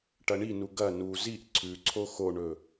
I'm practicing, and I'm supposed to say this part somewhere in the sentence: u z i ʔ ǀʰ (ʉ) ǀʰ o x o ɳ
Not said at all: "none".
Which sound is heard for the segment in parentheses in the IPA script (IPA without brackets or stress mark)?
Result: ʉ